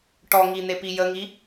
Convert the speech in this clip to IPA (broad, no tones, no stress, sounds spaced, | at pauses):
ʈ ɔ ŋ i n̪ e p i j ə ŋ i